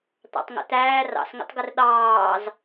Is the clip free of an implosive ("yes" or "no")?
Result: no